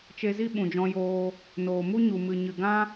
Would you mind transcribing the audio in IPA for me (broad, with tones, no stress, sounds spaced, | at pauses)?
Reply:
t͡ʃ e˧ z i˦ ɓ ũ˨ d͡ʒ ɔ̃˧ j oː˧ | n oː˨ m u˦ ɲ u˨ m ɨ˨ ɲ ɨ˨ ɡ ã˦